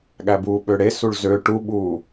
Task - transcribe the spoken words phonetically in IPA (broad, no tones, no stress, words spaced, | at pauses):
ɠæbuːɓøɽe suɭzø ʈuɓuː